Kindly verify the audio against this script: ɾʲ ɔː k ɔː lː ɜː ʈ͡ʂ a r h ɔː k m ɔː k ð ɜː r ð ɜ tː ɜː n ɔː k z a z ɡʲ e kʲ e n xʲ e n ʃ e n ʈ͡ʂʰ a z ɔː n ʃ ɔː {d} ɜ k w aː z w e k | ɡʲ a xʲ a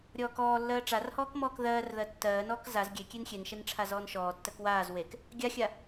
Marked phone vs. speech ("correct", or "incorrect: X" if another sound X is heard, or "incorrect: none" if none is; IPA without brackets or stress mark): incorrect: tː